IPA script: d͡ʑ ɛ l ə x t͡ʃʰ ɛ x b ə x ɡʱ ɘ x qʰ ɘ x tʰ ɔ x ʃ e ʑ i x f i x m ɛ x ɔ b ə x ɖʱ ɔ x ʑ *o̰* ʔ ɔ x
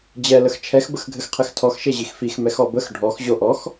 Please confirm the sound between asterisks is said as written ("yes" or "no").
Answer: no